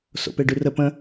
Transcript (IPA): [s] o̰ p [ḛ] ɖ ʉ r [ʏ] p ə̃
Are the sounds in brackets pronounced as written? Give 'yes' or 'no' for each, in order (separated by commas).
yes, no, no